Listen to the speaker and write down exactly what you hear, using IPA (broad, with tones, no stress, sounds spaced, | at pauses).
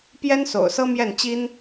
p j ɛ˥ n s o̰˨˩ ʊ̯ s ɤ˥ m j ɛ˥˩ n t͡ɕ i˥ n